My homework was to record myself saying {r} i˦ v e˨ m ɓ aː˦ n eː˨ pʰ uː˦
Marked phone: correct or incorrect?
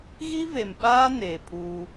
incorrect